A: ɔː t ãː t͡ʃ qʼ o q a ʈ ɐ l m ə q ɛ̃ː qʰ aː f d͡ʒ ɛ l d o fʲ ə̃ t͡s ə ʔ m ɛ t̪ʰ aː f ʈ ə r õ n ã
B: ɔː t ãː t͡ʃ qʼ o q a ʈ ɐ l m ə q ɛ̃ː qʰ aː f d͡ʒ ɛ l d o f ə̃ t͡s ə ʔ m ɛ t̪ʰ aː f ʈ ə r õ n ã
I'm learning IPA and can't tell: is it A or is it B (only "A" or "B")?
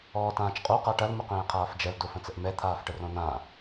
B